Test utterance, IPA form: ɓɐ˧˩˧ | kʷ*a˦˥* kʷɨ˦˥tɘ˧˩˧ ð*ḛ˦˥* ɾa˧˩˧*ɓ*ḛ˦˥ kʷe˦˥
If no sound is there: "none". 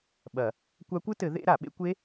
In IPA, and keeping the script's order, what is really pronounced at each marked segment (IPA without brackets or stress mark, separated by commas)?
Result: a˦˥, ḛ˦˥, ɓ